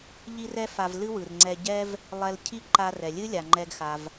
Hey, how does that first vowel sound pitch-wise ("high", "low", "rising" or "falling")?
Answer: high